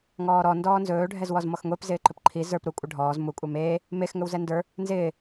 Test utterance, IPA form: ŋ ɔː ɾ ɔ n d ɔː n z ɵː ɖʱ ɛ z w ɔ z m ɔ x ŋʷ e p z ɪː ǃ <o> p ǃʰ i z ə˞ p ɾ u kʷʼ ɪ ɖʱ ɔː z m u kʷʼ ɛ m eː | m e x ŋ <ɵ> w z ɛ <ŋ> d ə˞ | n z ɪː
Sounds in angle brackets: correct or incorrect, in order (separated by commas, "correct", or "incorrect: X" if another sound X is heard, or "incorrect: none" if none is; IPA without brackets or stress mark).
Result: incorrect: ɵ, correct, incorrect: n